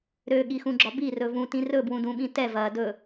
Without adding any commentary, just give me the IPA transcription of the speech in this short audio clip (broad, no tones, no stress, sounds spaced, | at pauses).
ɾ ø ɠ i x ũ ɡ͡ǁ ɒ b i r ɵ v ũ t ĩ r ɵ b w ũ d ũ ɓ ĩ t ɛ v ɐ d ɵ